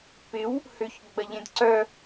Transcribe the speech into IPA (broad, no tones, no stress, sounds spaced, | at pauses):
p ɪ w | h ʏ ç ɡ͡b ɐ ʎ ẽ d ǀ œ